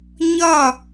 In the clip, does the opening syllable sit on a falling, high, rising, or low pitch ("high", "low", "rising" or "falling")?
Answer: falling